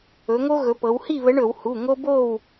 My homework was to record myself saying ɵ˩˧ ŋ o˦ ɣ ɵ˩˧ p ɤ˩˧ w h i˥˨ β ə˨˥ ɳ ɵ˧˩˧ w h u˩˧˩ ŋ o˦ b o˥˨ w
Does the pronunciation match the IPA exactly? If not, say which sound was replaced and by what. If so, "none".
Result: none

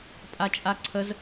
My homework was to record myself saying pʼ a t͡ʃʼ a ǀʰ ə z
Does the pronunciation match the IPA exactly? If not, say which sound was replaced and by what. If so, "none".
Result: none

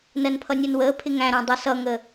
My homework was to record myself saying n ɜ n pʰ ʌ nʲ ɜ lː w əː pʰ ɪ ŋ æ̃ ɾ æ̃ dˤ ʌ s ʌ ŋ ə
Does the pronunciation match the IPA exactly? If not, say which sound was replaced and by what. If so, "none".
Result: lː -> n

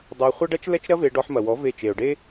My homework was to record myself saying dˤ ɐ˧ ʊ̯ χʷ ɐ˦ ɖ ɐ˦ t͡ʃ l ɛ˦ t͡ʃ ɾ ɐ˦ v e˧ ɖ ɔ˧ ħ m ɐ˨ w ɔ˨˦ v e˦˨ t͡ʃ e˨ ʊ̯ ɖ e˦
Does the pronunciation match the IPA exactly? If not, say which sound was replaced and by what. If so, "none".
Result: none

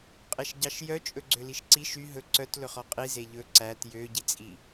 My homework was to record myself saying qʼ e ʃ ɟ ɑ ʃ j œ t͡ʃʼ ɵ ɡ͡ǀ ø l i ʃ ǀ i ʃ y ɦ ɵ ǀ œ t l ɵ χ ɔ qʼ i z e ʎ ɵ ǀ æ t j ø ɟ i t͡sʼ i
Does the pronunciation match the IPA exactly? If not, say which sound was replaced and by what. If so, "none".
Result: none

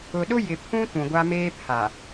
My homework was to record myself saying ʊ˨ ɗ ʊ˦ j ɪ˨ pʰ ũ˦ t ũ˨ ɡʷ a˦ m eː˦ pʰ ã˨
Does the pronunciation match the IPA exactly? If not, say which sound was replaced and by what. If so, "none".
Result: ã˨ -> a˨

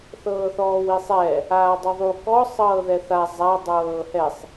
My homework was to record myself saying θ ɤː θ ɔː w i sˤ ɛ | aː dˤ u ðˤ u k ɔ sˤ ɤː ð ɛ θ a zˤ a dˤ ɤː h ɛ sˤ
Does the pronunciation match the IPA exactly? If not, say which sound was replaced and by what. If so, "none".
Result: none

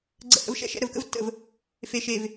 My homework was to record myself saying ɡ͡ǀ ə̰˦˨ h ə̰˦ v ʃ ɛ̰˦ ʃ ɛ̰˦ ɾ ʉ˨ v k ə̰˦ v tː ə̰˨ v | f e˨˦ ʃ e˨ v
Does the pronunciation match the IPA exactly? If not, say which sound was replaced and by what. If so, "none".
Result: ʉ˨ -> ə˨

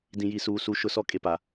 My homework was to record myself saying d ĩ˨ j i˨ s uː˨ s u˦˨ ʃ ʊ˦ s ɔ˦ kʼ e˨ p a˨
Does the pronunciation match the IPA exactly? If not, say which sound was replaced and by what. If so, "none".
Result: none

